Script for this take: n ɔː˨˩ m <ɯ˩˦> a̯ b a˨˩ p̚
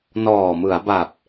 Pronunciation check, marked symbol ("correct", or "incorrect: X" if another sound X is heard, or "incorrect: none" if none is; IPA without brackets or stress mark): correct